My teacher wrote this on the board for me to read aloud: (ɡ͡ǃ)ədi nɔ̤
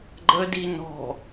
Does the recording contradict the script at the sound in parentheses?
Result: no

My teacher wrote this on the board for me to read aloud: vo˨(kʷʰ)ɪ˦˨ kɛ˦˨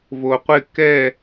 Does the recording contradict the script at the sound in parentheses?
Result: yes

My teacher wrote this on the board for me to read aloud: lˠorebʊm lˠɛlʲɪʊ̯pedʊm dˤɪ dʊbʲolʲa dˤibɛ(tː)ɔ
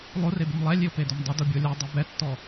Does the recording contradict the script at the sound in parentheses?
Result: no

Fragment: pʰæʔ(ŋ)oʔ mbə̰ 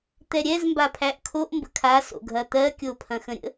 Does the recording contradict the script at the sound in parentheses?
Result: yes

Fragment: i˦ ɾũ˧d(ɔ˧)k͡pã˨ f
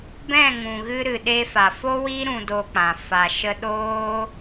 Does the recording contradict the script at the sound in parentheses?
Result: yes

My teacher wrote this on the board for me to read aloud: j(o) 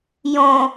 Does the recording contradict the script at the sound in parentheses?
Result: yes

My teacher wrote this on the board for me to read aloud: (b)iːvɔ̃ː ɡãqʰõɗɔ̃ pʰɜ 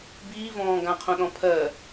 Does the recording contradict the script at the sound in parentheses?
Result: no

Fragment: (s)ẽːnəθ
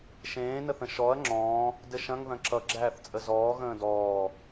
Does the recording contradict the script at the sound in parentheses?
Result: yes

